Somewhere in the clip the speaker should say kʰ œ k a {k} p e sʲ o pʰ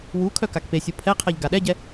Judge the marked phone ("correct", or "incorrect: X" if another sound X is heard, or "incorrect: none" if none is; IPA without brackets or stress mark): correct